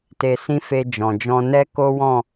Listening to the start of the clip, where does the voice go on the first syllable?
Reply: low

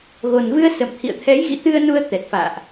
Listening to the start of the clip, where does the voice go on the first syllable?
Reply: low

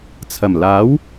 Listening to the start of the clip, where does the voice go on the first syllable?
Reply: low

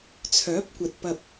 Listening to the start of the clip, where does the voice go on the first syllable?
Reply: rising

